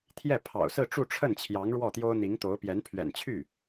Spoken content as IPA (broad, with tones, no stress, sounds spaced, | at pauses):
t̪ʰ j ɛ˥˩ pʰ ɑ̰˨˩ ʊ̯ s ɹ̩˥˧ ʈ͡ʂ u˥˧ ʈ͡ʂʰ ə˥˩ n t͡ɕʰ j ɑ˧˥ ŋ ɻ w ɔ˥˩ t̪ j o˥ ʊ̯ n̪ i˧˥ ŋ t̪ o˧˥ ʊ̯ p j ɛ˧˥ n pʰ ɥ ɛ̰˨˩ n t͡ɕʰ y˥˩